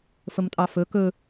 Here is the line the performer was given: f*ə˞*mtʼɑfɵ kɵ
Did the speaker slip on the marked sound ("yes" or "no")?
yes